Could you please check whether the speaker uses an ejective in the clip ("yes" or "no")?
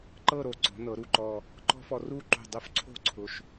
no